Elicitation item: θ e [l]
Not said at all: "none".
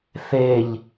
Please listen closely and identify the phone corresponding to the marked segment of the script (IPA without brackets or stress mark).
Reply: ʎ